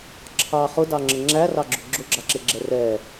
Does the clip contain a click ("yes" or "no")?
yes